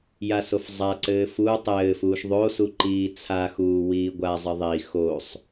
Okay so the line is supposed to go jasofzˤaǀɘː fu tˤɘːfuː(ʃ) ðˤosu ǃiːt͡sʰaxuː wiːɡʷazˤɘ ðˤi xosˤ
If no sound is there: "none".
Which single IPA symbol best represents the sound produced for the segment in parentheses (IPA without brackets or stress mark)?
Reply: ʃ